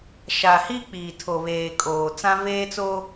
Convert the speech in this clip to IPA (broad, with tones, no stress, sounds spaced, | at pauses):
ʃ a˨ h i˦ k͡p iː˨ tʰ o˨ β eː˨ kʼ oː˨ t͡s ã˦ v eː˦ t͡s o˦